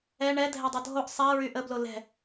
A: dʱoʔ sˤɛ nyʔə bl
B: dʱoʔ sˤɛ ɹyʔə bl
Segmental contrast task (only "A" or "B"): B